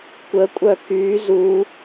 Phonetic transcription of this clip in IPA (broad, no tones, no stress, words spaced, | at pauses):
kʷəkʷʼœ ky zu